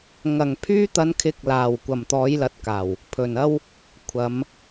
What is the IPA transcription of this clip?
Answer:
ŋ ɐ˨˩ ŋ pʰ yː˧ t̪ ɐ˨˧ n kʰ ɪ˨˥ k̚ l aː˨˩ w kʷ ɐ˨˩ m t̪ ɔː˨˥ j l ɐ˨˥ t̚ k aː˨˩ w | pʰ ɵ˨˩ n ɐ˥ w | kʷʰ ɐ˨˧ m

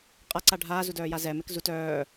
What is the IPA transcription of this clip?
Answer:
qʼ a ǀ a ɖʱ aː z u d œː j a z ɛ m e k z u t œː

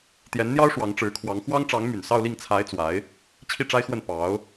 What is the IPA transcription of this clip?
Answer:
t̪ j ɛ˧˥ n n̪ j ɑ˥ ʊ̯ ʂ w ɑ˧˥ ŋ ʈ͡ʂ ɻ̩˧˥ kʰ w ɑ˧˥ ŋ x w ɑ˥ ŋ ʈ͡ʂ ɑ˧˥ ŋ m y˨˩ n s ɑ˥˧ ʊ̯ l i˥˩ ŋ t͡sʰ a˧˥ ɪ̯ t͡s w a˧˥ ɪ̯ | t͡ɕʰ i˥˩ ʈ͡ʂ a˥ ɪ̯ x w ə˥˩ n p ɑ˧˥ ʊ̯

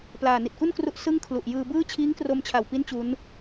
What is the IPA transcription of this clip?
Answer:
p l aː˨˩ n i˨˩ t̚ k u˥˩ n k r u˦˥ ʔ s ɯ˥˩ ŋ kʰ l u˨˩ ʔ j ɯː˧ b ɯː˥˩ t͡ɕʰ iː˦˥ ŋ k r o˧ m t͡ɕʰ a˨˩ w p i˦˥ n t͡ɕ u˦˥ n

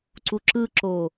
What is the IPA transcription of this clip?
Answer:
ǀ u ǁ ɯ ǁ o

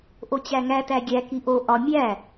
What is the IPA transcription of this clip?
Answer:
ʔ o t͡ɕ æ ŋ æ t æ ɡʲ æ k i ʔ o ʔ ɒ mʲ æ

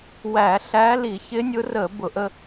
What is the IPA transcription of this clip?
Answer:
w æ˧˩˧ ɬ æ˧˥ l i˧˩˧ ç ɪ˧˥ nʲ ʊ˧˥ r əː˧˩˧ b ʊ˧˩˧ ʔ ə˧

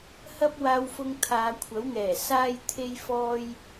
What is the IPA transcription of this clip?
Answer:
h ɐ˥ p̚ w aː˧ w f ʊ˧ ŋ t̪ʰ aː˨˧ kʷʰ ɐ˨˥ w ŋ ɛː˨˩ s aː˥ j t̪ʰ e˥ j f ɔː˥ j

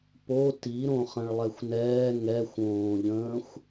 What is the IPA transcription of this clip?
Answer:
p o t i ɾ õ χ ə̃ ɭ lˠ ɛ xʷ n ɛː ŋ ɛ xʷ õː ʎ ə̃ː xʷ

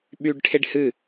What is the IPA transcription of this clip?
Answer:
ɓ yː ɖ ʈʰ e ɖ h ɨ

